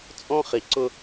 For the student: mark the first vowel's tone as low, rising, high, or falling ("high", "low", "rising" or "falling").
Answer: high